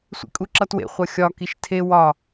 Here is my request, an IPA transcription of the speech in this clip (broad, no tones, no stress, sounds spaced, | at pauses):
sʷ ḭ kʼ u ǁ ʌ t w ḛ χʷ ʌ xʲ ɒ k i ʃ tʰ e w ɒ